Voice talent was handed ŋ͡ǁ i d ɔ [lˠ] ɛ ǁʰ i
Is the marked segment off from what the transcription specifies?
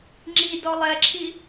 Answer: no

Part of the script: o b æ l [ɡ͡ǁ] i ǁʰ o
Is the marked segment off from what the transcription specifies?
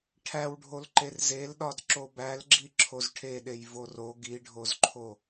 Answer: no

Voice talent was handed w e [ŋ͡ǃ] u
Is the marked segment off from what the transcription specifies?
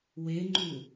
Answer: no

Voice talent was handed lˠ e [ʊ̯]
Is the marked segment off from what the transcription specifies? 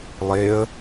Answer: yes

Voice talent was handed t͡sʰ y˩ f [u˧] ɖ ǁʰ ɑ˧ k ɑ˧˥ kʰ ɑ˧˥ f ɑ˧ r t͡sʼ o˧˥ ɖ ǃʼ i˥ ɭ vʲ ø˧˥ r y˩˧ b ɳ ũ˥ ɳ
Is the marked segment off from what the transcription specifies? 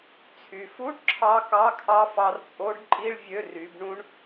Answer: yes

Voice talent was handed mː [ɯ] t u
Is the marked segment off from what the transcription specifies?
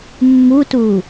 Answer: yes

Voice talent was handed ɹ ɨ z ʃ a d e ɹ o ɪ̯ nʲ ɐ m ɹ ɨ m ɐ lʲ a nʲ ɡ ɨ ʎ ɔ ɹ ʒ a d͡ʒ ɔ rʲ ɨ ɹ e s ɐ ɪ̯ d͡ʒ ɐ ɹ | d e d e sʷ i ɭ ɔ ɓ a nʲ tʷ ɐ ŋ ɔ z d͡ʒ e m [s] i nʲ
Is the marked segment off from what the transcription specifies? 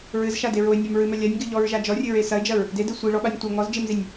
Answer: yes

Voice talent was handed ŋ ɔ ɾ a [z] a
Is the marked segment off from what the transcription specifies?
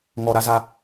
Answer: no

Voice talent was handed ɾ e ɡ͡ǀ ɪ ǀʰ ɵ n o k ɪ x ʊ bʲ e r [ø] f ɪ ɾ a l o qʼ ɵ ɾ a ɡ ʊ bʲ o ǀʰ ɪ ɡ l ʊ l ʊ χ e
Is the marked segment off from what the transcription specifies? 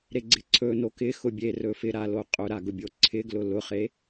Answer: yes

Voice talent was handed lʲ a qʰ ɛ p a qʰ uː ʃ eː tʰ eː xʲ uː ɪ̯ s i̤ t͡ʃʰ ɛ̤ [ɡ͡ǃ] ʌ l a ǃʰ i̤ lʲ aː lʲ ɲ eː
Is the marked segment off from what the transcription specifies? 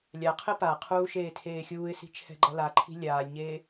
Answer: no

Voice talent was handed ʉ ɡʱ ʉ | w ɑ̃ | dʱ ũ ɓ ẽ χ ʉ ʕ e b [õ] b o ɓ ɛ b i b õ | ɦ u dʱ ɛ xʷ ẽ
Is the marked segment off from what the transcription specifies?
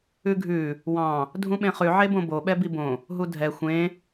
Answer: no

